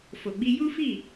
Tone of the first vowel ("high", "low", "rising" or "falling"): low